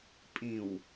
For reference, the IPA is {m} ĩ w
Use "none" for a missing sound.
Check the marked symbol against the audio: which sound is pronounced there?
pʼ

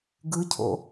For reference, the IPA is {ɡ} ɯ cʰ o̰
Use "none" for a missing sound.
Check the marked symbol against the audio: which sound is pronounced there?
ɡ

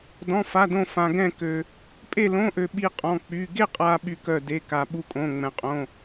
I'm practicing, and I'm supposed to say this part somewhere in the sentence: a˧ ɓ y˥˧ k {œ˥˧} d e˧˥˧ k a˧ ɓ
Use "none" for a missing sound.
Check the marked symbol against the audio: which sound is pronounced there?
œ˥˧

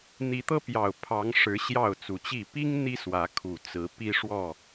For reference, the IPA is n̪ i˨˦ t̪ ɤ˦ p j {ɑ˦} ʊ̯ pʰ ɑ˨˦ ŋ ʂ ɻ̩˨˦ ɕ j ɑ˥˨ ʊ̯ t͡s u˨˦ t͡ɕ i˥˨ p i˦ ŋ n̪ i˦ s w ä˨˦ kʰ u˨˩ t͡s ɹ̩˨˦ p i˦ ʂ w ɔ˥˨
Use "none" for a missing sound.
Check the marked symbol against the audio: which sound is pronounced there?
ɑ˨˩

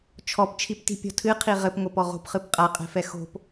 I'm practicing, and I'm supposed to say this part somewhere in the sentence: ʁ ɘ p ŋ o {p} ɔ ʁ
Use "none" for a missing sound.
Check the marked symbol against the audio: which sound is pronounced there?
p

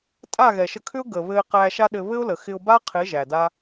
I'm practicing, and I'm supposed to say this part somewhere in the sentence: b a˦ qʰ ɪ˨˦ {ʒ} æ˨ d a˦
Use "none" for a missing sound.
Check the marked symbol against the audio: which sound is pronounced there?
ʒ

